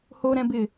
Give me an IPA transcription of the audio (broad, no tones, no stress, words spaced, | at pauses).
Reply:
hoɾɛ̃bɪ